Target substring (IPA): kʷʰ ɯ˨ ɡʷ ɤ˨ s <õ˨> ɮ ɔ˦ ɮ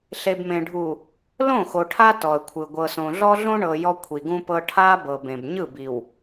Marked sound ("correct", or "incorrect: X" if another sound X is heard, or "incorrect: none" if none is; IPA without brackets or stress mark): correct